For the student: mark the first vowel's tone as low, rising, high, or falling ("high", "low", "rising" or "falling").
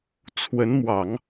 rising